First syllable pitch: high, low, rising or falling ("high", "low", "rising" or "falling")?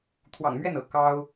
low